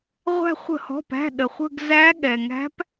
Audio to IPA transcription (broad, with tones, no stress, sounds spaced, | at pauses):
ʁʷ æ̤˦˨ χʷ ə̤˧˩˧ h ɔ̤˩˧˩ p æ̤˩˧˩ ɗ ə˩ χʷ ə̤˦˨ ɡ z æ˧˥ ɠ ɛ˩ ŋ æ̤˧˥ p